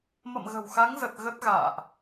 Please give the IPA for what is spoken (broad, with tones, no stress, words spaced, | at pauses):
mə̰˧˨mɣə̤˨˩wxa˨˦ŋzə˨˩t̚ ɣə˦˥t̚ ɣa̰ː˧˨ʔ